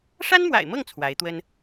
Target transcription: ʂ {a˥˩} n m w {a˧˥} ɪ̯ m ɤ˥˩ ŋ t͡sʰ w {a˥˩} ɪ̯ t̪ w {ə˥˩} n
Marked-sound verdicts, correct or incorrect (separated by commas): incorrect, incorrect, incorrect, incorrect